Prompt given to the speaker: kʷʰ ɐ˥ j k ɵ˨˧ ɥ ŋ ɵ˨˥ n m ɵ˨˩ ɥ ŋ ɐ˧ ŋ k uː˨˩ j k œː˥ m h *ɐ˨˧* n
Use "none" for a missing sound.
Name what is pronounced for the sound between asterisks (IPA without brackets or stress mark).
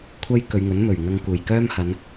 ɐ˨˧